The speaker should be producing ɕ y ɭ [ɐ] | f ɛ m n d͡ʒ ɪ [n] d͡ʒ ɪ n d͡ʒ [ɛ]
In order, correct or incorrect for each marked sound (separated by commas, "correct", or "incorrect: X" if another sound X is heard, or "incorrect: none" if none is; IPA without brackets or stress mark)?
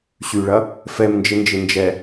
correct, correct, correct